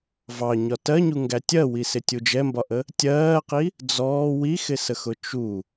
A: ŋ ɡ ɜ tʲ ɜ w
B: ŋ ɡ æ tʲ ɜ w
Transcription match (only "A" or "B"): B